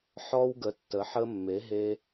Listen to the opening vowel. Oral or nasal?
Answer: oral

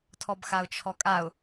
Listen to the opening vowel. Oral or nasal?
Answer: oral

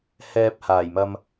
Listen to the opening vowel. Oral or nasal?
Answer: oral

